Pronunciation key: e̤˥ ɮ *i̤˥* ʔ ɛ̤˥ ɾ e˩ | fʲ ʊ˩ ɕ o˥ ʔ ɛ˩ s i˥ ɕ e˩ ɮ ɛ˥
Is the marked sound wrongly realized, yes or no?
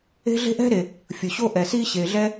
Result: yes